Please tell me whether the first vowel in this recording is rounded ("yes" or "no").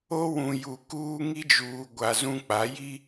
yes